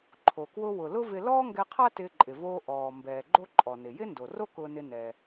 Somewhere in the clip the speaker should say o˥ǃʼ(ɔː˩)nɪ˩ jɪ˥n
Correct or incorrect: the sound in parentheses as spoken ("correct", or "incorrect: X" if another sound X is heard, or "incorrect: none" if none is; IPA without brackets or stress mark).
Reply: incorrect: ɔ˩